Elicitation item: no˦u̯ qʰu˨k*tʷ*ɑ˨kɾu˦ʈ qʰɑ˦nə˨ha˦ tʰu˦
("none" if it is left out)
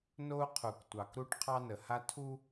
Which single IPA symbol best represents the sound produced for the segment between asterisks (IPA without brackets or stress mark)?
tʷ